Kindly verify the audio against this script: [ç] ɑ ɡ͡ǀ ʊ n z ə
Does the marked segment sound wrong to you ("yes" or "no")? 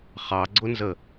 yes